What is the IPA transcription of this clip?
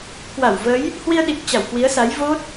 kwa˧˩wvə˨˦j | hwi˧ə̯ɗi˨˩k̚ t͡ɕa˧˩wkwi˨˦ə̯sa˨˦j vo˦˥t̚

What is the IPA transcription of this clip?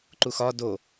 ǃuxɒ do

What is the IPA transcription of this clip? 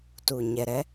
tu˨ ɲɛ˨ɾɛ˦

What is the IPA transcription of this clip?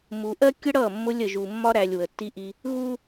mu˨ʔɜ˦kʲə˦ ɽʌ˦˨mːʊ˦lʲ ə˨ʒu˨mːɒ˦ ɾæ˨lʲ wə˨tːi˦ʔi˦ | ɣu˦

